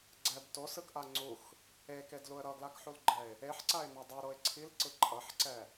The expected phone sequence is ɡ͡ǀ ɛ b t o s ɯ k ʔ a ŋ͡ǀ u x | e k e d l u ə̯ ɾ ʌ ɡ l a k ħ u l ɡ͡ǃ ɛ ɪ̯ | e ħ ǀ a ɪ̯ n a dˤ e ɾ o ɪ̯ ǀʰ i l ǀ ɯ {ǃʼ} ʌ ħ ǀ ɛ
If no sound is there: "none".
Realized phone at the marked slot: ǃʼ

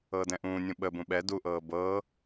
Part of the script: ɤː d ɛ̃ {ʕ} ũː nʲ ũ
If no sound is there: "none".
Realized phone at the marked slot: ʔ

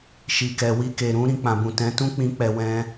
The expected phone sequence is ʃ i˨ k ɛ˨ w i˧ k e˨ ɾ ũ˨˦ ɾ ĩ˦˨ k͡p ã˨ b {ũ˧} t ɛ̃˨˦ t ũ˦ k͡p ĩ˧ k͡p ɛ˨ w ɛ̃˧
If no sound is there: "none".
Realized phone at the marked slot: ũ˨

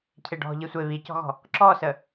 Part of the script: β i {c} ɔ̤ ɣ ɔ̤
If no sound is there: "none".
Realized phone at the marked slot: c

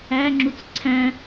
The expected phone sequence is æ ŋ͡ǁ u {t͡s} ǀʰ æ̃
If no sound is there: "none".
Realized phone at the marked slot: t͡s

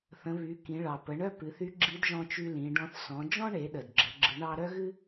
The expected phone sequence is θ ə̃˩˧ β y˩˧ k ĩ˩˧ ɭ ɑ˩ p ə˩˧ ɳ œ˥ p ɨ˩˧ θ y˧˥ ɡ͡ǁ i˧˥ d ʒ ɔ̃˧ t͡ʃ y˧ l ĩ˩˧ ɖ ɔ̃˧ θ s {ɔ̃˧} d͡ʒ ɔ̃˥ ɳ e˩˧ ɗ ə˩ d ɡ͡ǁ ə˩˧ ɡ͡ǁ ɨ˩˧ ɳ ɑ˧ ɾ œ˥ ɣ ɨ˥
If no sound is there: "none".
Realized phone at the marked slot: ɔ̃˩˧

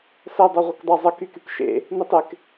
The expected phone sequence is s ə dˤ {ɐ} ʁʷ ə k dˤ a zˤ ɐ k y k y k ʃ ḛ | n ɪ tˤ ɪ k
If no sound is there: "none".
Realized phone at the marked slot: ɐ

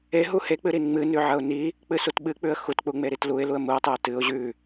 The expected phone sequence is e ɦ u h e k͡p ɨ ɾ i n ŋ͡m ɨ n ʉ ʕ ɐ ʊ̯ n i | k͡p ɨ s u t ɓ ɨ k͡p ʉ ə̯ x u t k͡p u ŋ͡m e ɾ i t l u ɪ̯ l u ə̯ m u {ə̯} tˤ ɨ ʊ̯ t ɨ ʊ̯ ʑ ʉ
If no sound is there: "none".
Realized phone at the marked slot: ə̯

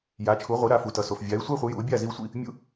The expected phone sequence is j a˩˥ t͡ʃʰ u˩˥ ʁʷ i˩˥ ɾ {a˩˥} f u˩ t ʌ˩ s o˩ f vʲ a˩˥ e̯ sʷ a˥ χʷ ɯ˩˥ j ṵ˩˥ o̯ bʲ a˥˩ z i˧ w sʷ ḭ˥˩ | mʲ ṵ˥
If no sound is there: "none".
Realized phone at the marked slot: a˩˥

